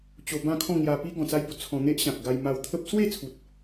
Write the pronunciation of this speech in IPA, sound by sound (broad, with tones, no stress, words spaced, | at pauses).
t͡ɕo˧ bã˥˧kʰɔ̃˥˧ ŋja˧pi˦ ɡɔ̃˨˩t͡sa˧jbo˨˩ t͡sʰɔ̃˧n̪e˦ʔ ɕã˨k̚ɡa˧j ma˧wt̪ʰə˦p̚ swe˥˧t͡sʰu˨t̚